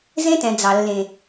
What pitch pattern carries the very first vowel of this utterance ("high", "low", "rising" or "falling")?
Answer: high